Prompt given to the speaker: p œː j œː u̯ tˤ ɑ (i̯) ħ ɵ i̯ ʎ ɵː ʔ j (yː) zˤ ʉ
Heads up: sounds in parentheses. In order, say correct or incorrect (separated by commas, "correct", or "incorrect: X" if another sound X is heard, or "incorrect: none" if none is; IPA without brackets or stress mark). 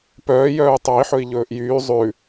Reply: correct, correct